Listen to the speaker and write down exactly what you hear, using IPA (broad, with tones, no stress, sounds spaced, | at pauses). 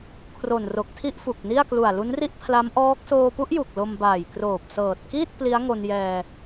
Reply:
kʰ r o˨˩ n r o˨˩ k̚ tʰ i˥˩ ʔ f u˨˩ k̚ n i˥˩ a̯ k l u˨˩ a̯ l u˦˥ n r i˥˩ ʔ pʰ l a˦˥ m ʔ ɔː˦˥ k̚ s oː˧ p u˦˥ ʔ j u˨˩ k̚ l o˧ m b aː˨˩ j k r oː˨˩ p̚ s ɤː˨˩ t̚ k iː˥˩ t̚ p l i˦˥ a̯ ŋ o˧ n j ɛː˧